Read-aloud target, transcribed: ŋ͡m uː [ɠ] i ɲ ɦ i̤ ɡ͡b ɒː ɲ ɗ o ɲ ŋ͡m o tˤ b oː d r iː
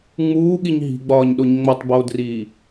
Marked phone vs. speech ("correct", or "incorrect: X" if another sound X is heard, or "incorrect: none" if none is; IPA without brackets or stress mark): correct